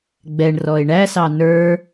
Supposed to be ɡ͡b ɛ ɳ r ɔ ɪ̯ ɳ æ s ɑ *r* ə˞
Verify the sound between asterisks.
incorrect: n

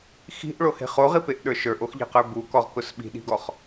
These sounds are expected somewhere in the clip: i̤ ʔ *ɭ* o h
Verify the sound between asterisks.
correct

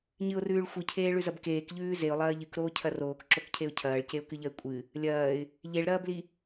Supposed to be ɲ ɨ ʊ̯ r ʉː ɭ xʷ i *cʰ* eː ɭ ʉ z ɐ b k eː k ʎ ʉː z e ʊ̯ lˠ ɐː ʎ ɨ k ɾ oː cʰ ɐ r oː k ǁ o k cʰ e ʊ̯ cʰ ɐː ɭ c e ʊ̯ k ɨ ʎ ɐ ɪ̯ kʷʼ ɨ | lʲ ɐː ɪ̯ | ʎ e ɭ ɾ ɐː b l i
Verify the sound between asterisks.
correct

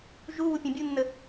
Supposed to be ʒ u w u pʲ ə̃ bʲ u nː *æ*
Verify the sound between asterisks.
incorrect: ə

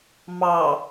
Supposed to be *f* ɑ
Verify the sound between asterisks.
incorrect: m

